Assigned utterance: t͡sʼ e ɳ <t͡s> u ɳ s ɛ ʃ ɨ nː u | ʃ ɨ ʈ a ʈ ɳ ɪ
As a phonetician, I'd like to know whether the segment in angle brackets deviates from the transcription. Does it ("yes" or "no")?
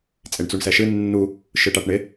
no